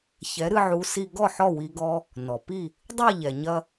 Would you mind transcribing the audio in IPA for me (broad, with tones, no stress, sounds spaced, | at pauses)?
ç ɛ˩˥ ɾ ɨ˧ ʕ u˩˥ s i˧ ɡ ɔ˥˩ ħ ɔ˥˩ w i˧ ɡ ɔ˧ | n ɔ˩ p i˥˩ | dˤ ɛ˥˩ ʎ ɛ˩ ɲ ɐ˧